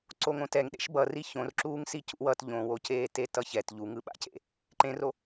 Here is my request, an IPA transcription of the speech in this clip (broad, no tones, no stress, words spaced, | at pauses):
ǀoŋõtɛŋ ɗḛʃbʌri çõrǁuːŋ sicṵwʌt ʎõwoceː tetʌçɛt ʎuŋɯɓa̰cḛ | ǃẽro